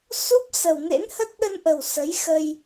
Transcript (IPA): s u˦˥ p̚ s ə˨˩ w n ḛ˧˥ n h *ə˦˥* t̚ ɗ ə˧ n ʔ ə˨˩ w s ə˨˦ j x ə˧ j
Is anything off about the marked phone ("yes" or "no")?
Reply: no